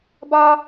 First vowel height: low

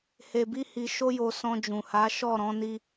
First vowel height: mid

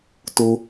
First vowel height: mid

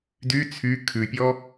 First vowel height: high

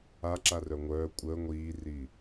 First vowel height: low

